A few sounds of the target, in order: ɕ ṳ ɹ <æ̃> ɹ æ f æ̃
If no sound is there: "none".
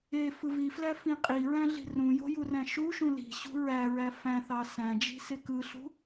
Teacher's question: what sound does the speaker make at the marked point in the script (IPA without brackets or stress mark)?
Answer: æ